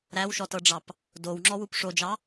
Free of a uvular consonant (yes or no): yes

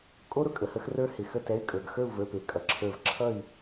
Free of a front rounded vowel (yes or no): no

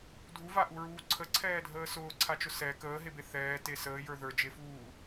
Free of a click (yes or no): no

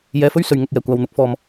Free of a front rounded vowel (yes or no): yes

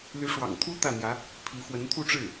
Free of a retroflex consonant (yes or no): no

